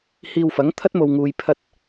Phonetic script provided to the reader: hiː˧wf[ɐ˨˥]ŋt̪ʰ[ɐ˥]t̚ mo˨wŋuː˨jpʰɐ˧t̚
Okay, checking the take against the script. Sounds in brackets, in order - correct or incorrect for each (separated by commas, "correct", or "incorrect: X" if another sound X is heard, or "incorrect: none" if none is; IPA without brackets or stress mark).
correct, correct